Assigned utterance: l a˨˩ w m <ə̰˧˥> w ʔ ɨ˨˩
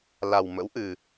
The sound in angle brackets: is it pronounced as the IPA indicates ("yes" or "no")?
yes